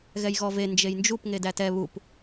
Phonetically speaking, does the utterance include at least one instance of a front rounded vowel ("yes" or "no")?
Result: no